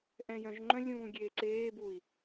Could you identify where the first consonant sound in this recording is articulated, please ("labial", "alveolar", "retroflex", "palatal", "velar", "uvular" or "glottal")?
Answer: glottal